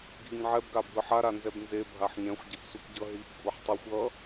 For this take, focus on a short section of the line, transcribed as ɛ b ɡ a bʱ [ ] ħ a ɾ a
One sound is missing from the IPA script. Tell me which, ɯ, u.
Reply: ɯ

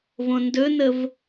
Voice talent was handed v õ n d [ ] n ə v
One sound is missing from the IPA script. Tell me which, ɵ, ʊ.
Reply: ɵ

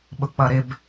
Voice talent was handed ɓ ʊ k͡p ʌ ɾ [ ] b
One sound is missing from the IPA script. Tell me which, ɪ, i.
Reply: ɪ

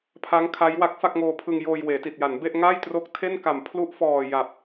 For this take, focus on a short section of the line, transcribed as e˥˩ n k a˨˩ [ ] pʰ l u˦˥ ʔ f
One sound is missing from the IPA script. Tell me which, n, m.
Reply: m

